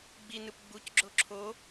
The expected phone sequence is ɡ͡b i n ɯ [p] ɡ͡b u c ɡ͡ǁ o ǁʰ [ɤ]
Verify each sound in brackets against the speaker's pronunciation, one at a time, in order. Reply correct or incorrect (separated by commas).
correct, incorrect